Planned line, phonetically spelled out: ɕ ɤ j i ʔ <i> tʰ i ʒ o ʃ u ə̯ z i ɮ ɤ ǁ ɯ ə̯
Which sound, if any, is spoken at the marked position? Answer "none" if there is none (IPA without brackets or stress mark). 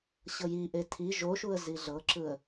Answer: e